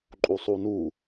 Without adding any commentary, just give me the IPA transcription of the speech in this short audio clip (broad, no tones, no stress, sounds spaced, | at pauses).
ǃʼ u sˤ uː n uː